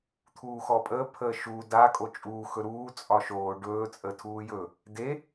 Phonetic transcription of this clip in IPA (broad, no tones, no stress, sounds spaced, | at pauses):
t̪ʰ uː x ɔː pʼ əː pʰ əː ʃ u d a kʼ o t͡ʃʼ uː x ɵ ɾ uː t͡sʼ ɒ ʃ oː ɖ ɵː t͡sʼ ə tʰ uː j ɵ | d e